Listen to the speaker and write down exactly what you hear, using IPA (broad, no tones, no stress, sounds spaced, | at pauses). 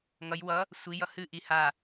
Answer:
ŋ ʌ j w ʌ | sʷ i j ʌ h ɨ ʔ i h a